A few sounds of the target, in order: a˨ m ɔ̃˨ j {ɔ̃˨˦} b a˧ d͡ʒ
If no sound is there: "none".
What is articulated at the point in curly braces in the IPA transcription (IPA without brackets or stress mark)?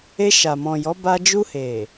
ɔ˨˦